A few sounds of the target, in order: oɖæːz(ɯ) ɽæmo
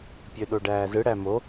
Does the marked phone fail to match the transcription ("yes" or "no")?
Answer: no